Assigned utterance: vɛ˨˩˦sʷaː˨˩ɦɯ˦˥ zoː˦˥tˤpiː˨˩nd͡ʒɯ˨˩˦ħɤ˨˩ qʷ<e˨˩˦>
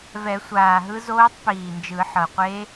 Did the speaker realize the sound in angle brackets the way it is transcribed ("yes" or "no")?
no